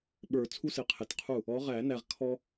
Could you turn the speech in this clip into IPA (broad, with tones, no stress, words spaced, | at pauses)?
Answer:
ɓə˞˨˩˦t͡sʰu˦ sɪ˨˦qʰɪ˨tqʰu˥˩ | ɔ˨˦ʁæ˨˩˦næ˨ʁ kʰɔ˦